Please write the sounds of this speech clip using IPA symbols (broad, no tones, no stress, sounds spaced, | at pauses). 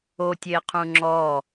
o tʲ e qʰ ũ ŋ͡ǁ ɔː